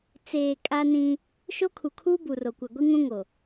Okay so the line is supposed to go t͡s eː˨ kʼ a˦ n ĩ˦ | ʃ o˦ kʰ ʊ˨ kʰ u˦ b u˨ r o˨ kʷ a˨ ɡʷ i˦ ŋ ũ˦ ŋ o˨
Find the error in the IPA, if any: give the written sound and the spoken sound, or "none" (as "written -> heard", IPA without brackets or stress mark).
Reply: ʊ˨ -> u˨